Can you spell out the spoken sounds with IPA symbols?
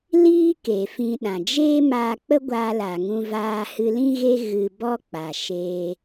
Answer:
l iː˦ k e˨ f ĩ˧ ɗ ã˨ d͡ʒ eː˦ m aː˧ k͡p ə˦ ɡʷ a˧ l a˨ ŋ ũ˧ v aː˧ h ɨ˧ l ĩ˦ ɣ e˦ ɣ ɨ˧ b ɔ˦ k͡p a˨ ʃ eː˧

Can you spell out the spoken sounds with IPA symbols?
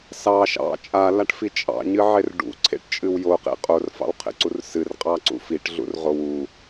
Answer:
s ɑ ʃ ɑ̰ t͡ʃʼ a l a ʈ f i t͡ʃʼ ɑ̰ ɲ ɨ ʕ e r ɖ ṵ ǀʰ ḛ ʈ t͡ʃʼ ɨ w j o q ḛ qʼ o r f ɑ̰ w qʰ ḛ ǀ u r s ɨ r qʼ ɑ ǀ ṵ f i ʈ ɮ ṵ r ʁ o w u

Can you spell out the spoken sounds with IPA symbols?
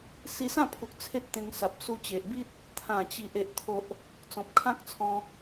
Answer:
s i˧ s ã˥˧ pʰ u˨ k̚ t͡sʰ e˦ t̚ t̪ ẽ˧ ŋ s a˨ p̚ s u˧ t͡ɕ e˨ ʔ b i˦ t̚ | t̪ʰ ã˨˩ t͡ɕ i˨ ʔ e˨ ʔ t̪ʰ o˨ ʔ | t͡s ɔ̃˨ p̚ kʰ ã˦ k̚ t͡sʰ ɔ̃˧

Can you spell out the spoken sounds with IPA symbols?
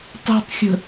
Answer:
tˤ ṳ tˤ xʲ ə̤

